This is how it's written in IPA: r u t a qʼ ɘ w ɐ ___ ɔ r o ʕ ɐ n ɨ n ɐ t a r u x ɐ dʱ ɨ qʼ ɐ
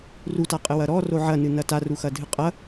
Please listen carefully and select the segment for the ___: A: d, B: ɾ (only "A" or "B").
B